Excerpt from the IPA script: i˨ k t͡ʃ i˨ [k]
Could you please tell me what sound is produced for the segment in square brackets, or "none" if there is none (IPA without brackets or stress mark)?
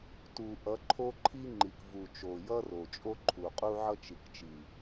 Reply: none